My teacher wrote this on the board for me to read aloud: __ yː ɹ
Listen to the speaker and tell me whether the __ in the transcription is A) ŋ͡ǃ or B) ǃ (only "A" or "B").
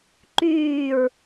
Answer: B